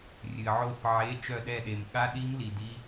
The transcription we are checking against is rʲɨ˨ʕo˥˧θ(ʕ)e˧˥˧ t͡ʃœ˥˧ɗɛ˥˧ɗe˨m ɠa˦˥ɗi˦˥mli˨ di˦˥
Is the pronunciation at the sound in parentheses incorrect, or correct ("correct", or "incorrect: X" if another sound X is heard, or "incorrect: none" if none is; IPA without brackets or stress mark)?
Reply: correct